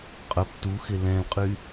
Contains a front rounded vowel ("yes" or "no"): yes